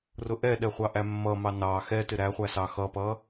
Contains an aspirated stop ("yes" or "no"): no